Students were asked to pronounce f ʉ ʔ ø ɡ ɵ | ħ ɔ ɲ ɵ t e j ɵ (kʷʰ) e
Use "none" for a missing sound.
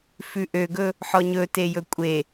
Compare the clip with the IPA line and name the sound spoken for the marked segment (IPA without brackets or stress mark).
kʷʼ